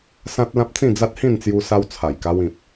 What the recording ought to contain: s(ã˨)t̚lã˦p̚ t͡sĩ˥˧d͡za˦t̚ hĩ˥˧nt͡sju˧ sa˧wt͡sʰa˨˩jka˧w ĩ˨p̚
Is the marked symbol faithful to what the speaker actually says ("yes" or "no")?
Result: no